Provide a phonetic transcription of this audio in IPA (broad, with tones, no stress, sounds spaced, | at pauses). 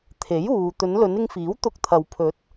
t̪ʰ e˨˥ j uː˨ t̪ ɵ˨˧ n l ɵ˨˧ n ɪ˧ ŋ f iː˨˥ w t̪ ʊ˧ k̚ t̪ʰ ɐ˨ w pʰ ɵ˨˥ t̚